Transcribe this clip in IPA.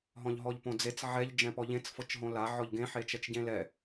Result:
ɦ ɔ̃ ʎ ɦ ɔ ʎ p õ d͡z e t͡s ʕ ɛ ʎ d͡ʒ ɛ̃ p ɔ ʎ ẽ t͡s f ɤ t͡ʃ ɦ õ l a ʕ ɔ ʎ ɡ ẽ ħ e t͡ʃ ɛ t͡ʃ ɟ ẽ l ɛ

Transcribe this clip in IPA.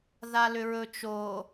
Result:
ð a l ʏ ɹ ɵ t͡ʃ o

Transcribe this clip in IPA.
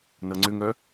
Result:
n ʌ ŋ͡ǀ ʏ ŋ œ

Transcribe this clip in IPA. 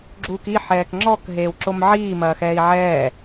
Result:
ɡ͡ǁ uː k i ħ ɛː k ŋ͡ǁ ɔ k ɦ eː w ǁ o m ʕ iː m ɐː x ɛː i̯ ʕ ɛː

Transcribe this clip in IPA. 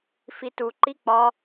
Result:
f i t u ǃ i k͡p ɒ

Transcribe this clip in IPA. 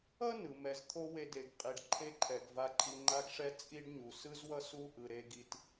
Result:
ʌ˥ n ɯ˩ m ɛ˨ z t̪ʰ o˦ w e˨ d e˩ ɡ qʼ i˩ ɖ ǃʰ e˦ ǃʰ ɛ˩ ɡ v a˨ ǃʰ i˨ ŋ͡ǃ a˦ ɡ ʂ ɛ˦ t͡sʼ i˦ ɖ ɲ u˩ s ɯ˦ z w ʌ˦ s u˥ ʔ ɯ˩ ɾ e˨ ɡ i˩ t

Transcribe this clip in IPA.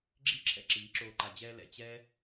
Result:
ɡ͡ǁ i˦ ǁʰ ɛ̰˦ ǁ i˨˦ ǁ oː˧ ǃ a˨ d͡ʑ ɛː˧ l ɛ̰˨ t͡ɕ ɛ˦

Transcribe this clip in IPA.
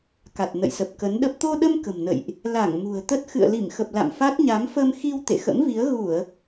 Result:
k a˨˩ t̚ n ə̰˧˨ j s ə˨˩ p̚ k ə˨˦ n ɗ ə˦˥ p̚ t̪ o˧ ɗ ə˧ m k ə̤˨˩ m n ə̰˧˨ j ʔ | l a˧˩ ŋ m ṳ˨˩ ə̯ t̪ ə˦˥ t̚ x ɨ̰˧˨ ə̯ l i˧˩ m x ə˨˩ p̚ l a̰˧˨ m f a˦˥ t̚ ɲ a˨˦ m f ə˧ m x i˧ w t̪ ḛ˧˨ x ə̰˧˥ m v i˨˦ ə̯ ɣ u˧˩˨ ə̯

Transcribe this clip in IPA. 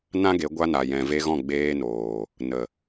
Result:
n ã˦ ɡ e˨˦ ɡʷ a˧ n a˨ j ɛ̃˨ v e˧ ɣ ɔ̃˦˨ ɡ͡b eː˧ n oː˨ | n ə˨

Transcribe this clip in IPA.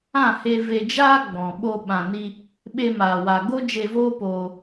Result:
ã˦˨ h e˧ v e˨ d͡ʒ aː˧ ɡ͡b ɔ̃˨ ɓ o˧ ɓ ã˨ n i˧ | ɓ e˧ m aː˨ w a˨ ɡ o˦ d͡ʒ e˧ v oː˦ p oː˧

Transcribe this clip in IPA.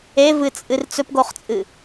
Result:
e v ɨ t͡sʼ ɨ r t͡s ɵ p ɡ o χ t͡sʼ ɨ

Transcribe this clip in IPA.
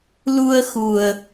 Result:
l u˧ ə̯ x u˨˩ ə̯

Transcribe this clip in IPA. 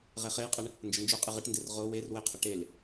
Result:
ʁ e χ e j qʼ ə ɳ | n d͡ʒ ə n d͡ʒ o qʼ ɪ ʁ ɪ ʈ n d e r ʁ o w e r w ɪ qʰ ə ʈ e l

